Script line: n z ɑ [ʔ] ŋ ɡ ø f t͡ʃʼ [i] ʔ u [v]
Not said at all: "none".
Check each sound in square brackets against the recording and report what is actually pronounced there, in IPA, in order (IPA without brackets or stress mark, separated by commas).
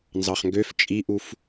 χ, i, f